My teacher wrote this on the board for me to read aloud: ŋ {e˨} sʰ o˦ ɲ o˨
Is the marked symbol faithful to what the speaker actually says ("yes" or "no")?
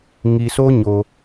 no